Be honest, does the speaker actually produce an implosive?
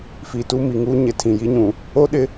yes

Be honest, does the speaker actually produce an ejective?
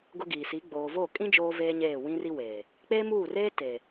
yes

